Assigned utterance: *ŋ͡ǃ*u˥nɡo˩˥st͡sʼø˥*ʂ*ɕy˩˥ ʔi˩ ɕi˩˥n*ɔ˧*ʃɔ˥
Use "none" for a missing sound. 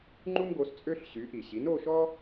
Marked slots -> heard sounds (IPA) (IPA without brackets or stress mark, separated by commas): ŋ͡ǃ, ɬ, o˧